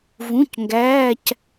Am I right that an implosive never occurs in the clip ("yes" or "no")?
yes